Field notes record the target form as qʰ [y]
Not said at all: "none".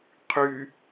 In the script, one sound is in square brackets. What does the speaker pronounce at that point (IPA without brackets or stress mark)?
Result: y